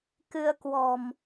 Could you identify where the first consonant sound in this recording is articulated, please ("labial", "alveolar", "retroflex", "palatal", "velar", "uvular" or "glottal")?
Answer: velar